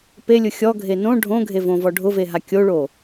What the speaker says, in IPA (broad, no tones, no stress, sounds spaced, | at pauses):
p e lʲ ʊ xʲ ɔ ɡʱ e n õ ɖʱ õ ɡʱ e v õ v ɔ ɖʱ ʊ v e ɦ a kʲ o ɭ o